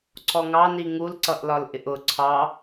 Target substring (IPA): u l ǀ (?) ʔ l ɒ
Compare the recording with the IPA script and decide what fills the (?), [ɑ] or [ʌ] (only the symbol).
ʌ